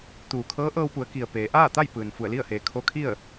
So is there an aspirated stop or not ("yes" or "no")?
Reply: yes